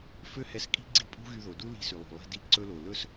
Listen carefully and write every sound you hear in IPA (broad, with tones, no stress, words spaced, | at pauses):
fø˥hɛ˧skʼi̤˥ɡ͡ǀi˧ pʼṳ˥ɣy˧ðo˩ du˥ li̤˧sy˩lˠo̤˩ lˠi̤˧ di˧ ǀɵ˧lo˩ lɵ˥s